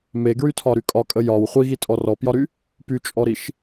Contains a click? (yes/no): no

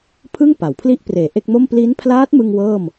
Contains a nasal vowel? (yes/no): no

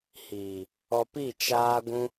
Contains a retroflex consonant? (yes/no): no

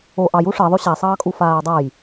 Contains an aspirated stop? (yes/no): no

